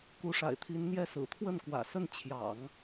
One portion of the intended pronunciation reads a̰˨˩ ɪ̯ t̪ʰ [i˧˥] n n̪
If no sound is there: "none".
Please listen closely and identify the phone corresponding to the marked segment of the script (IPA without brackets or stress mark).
i˧˥